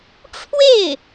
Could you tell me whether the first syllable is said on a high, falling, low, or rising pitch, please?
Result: falling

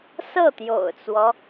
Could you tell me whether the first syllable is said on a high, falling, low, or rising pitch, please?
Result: falling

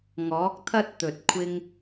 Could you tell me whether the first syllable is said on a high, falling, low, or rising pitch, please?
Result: rising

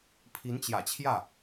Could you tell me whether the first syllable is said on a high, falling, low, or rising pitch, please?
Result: rising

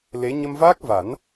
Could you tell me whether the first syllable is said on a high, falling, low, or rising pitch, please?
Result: rising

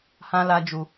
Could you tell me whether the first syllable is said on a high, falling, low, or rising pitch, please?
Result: high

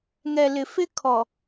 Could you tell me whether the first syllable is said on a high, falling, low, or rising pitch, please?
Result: low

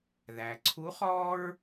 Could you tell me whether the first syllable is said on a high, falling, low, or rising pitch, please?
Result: low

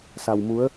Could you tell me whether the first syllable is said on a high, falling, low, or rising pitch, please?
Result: low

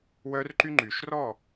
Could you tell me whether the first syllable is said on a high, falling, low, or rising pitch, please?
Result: high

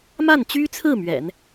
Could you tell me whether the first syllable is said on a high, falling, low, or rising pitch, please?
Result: falling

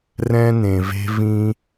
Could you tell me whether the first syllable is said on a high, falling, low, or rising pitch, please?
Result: high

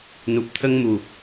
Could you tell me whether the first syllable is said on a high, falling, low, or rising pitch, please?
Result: low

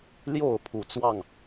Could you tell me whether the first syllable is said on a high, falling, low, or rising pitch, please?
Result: falling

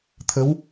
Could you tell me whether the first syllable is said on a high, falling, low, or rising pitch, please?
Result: rising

